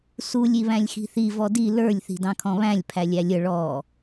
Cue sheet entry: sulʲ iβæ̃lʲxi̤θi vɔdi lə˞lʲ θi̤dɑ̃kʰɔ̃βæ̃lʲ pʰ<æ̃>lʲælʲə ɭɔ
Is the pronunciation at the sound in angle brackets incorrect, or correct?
incorrect